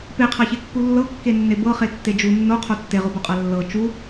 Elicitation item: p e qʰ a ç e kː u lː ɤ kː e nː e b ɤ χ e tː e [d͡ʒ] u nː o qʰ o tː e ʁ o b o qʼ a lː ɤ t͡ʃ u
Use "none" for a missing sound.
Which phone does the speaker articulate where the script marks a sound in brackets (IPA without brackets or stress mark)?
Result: d͡ʒ